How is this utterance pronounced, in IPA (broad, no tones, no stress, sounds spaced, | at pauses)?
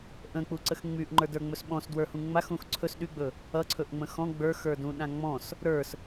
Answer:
ʔ ə̃ k͡p u ǀ ə x ŋ͡m y ʔ ŋ͡ǃ ə˞ d ə˞ ŋ͡m ɵ s ɓ ɔ̃ s d w ə˞ h ũ ŋ͡m a x ũ x ǀʰ ɵ s ɗ y ɡ͡b ɵ | ʌ ǀʰ ɵ ʔ ŋ͡m ə̃ x ɔ̃ ɡ͡b ə˞ x ə˞ d ũ ɗ ã ŋ͡m ɔ̃ s | ɾ ə˞ s